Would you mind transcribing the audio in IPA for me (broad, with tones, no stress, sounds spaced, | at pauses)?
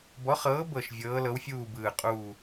b ɔ˨˥ χ ɤː˨˥ b ɤ˧˩ ʃ vʲ ɤː˨˥ l ɤ˨˥ w fʲ uː˥˨ b ɯː˧˩ qʼ uː˥˨